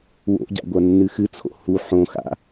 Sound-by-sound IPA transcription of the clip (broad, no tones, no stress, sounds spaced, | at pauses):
w o̰ ɟ a̰ ɡʷ ɐ nː ɨ x ɨ t͡sʰ o̰ h u ħ õ x a̰